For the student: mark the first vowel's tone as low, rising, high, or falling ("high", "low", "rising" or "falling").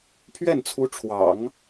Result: falling